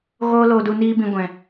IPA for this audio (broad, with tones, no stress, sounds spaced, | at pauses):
ɣ oː˦ l oː˧ d u˧ n iː˦ b ĩ˧ ɡʷ ɛ̃˨